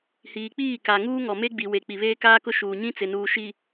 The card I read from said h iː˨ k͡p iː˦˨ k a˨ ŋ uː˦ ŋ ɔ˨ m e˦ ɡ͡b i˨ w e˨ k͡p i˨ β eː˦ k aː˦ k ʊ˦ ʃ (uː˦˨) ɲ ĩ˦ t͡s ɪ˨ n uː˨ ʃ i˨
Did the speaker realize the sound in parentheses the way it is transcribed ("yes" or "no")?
no